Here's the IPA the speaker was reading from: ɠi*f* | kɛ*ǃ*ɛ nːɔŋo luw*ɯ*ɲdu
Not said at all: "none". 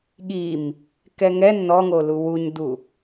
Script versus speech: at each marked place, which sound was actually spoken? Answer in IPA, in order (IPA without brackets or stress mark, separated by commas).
m, ŋ, u